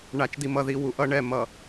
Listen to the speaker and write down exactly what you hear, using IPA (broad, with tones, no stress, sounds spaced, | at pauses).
ɳ a˨ t͡ʃ d i˨ m ʌ˨ ð i˨ w u˨ ʔ ʌ˦ ɳ ɛ˦˨ m ʌ˨